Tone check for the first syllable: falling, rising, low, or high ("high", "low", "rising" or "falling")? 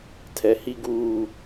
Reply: low